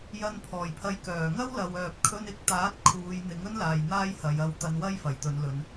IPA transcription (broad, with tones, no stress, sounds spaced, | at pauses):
j ɐ˨˧ n pʰ ɔː˨˩ j pʰ ɐ˨˥ j k œː˨˩ ŋ ɐ˥ w l ɐ˨ w œː˨ p̚ kʰ ɵ˧ n ɪ˨˥ k̚ t̪ aː˨˥ t̚ kʰ uː˨˧ j n̪ ɪ˨˥ ŋ ɵ˥ n l aː˨ j n̪ aː˥ j h ɐ˨˧ j ɐ˧ w t̪ ɐ˧ n w ɐ˥ j f ɐ˨˩ j t̪ ɵ˨˧ n l ɵ˨˧ n